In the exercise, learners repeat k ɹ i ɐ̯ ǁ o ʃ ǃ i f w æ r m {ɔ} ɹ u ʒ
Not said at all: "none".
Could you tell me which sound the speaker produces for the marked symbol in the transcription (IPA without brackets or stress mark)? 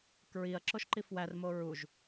o